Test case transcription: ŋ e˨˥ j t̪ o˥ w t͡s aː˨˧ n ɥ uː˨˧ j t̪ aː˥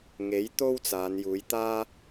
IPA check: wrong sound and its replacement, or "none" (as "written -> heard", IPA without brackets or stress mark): ɥ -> j